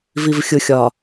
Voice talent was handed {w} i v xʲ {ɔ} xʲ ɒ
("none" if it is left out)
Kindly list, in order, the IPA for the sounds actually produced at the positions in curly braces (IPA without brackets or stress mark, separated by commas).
v, ʊ